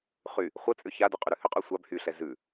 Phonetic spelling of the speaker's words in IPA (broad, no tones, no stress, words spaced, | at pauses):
χy | χʷət͡sʼʏ çadʉ qʼyɾʉhʏqʼy sʷab hyɬɛ zʉ